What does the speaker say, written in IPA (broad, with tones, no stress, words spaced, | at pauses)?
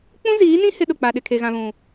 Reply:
k͡pũ˦ziː˨˦nĩ˦ hɪ˦ɗʊ˨k͡pa˨ɗɪ˨ kʰe˨ɣã˨ βũ˨